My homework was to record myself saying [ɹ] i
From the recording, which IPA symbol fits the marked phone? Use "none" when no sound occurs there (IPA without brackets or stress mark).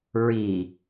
ɹ